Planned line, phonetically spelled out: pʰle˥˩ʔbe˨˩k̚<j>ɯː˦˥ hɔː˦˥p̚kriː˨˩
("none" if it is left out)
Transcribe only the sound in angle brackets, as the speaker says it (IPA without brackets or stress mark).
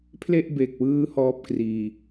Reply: w